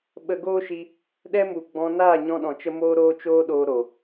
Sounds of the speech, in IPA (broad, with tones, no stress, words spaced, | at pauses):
ɓə˧ɡoː˦ʃi˧ | ɗɛ˦mu˨ ɡ͡bɔ̃˧ naː˦˨ɲɔ̃˧ɗɔ̃˨t͡ʃə˧ moː˦ɾoː˦t͡ʃoː˦ɗoː˧ ɾo˨